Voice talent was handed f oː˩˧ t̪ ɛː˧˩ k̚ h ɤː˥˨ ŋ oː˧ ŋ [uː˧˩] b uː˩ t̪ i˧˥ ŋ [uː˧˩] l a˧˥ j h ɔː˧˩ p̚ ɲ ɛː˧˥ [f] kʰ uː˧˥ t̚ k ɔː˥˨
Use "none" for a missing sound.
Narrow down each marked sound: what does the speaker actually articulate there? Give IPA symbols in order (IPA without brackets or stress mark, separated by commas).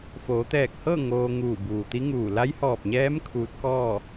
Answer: uː˧˩, uː˧˩, m